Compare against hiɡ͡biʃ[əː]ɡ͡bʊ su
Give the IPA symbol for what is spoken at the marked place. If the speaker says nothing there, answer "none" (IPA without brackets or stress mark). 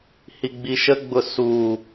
ə